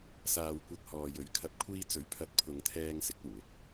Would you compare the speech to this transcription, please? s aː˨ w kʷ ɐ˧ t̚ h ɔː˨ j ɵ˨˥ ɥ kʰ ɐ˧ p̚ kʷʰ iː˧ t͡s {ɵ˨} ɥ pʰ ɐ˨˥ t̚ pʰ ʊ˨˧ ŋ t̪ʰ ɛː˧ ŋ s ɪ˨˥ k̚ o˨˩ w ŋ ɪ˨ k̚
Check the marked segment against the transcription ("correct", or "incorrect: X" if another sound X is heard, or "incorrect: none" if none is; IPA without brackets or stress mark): incorrect: ɵ˨˥